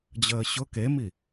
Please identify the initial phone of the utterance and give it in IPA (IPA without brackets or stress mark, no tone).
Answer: d͡ʑ